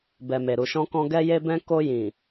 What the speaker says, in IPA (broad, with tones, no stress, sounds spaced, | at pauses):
b ɛ˨ m e˨ ɾ u˨ ʃ ɔ̃˧ k ɔ̃˧ ɡ ɛ˧ j e˧ b ɛ̃˧ k o˧ j ĩ˨